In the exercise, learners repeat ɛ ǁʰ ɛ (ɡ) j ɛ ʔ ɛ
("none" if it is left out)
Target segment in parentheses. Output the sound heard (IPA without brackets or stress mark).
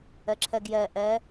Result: ɡ